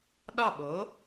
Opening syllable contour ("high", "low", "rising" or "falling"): falling